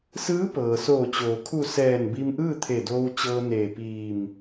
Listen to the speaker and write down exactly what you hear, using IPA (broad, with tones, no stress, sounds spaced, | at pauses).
s ɯː˧˥ p ɤː˩ s oː˧˩ t͡ɕ oː˩ kʰ u˧˩ s ɛː˧˩ n b i˧ m ʔ ɯː˥˨ t̪ʰ e˧˩ d oː˧ w t͡ɕ ɤː˧ n eː˧˩ p iː˧˩ m